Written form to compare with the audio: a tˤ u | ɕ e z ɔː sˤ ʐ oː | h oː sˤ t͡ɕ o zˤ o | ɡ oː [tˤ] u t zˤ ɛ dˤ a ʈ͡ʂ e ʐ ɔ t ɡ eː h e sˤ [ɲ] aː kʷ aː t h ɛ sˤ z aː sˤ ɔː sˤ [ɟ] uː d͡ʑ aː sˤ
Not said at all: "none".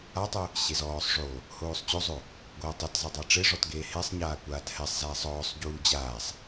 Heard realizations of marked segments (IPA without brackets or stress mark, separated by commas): tˤ, ɲ, ɟ